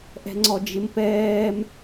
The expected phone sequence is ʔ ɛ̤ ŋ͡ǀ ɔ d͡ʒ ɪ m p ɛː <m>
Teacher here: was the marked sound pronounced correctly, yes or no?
yes